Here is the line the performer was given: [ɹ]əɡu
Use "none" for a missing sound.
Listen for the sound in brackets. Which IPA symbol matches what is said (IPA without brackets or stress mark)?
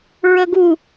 ɹ